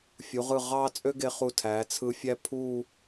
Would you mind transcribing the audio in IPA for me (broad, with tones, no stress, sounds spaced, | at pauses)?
fʲ u˩˧ ʁ ɯ˧˩ ʁ ɑː˥ t͡sʼ ø˥ ɡ e˧ χ u˧˩ tʰ æː˩˧ t͡sʰ ɯ˧ fʲ æ˥ pʰ u˥˧